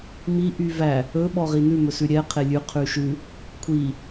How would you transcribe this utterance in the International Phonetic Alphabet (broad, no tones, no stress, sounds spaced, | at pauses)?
m i ʔ y v æ | ɵ ɓ ɔ ʁ i n ʉ m ɵ s ʉ ɾʲ ɛ qʰ e lʲ ʉ qʰ ʉ ʃ ʉ | kʷʰ i